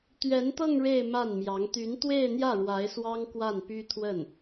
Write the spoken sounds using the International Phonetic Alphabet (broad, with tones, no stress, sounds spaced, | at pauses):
t̪ ɥ ɛ˧˥ n t̪ ɤ˥˧ ŋ ɻ e˥˧ ɪ̯ m a˥˩ n m j ɑ˧˥ ŋ t̪ y˧˥ n t̪ w e˥˧ ɪ̯ n̪ j ä˥˩ ɻ w a˧˥ ɪ̯ s w ɑ˥ ŋ k w a˥˩ n p y˥ t̪ʰ w ə˥˩ n